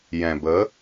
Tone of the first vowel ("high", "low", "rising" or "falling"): low